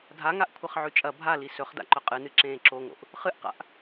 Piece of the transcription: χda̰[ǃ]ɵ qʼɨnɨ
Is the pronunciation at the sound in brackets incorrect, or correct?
correct